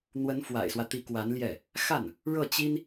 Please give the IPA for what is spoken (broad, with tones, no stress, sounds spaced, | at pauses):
n̪ w ə˧˥ n f w a̰˨˩ ɪ̯ s w ä˦ t̪ i˧˥ k w a˧˥ n l j ɛ˥˩ | x a˥˩ n | ɻ ɤ˥˩ t͡ɕ i˥ n